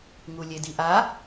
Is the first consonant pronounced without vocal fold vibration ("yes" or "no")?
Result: no